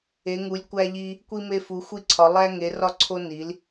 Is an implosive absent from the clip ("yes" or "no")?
yes